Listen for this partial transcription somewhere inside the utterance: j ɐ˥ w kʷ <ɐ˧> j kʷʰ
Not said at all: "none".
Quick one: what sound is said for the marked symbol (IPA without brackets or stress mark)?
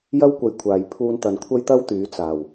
ɐ˧